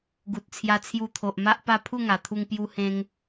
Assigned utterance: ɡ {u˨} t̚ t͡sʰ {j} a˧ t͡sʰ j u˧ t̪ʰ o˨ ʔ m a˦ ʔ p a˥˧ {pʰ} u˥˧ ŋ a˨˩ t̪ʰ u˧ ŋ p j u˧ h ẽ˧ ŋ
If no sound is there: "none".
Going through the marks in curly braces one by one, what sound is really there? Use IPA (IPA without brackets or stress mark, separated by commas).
u˨, j, pʰ